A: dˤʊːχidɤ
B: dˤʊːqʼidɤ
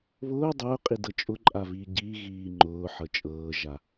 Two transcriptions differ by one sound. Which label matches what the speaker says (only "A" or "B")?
B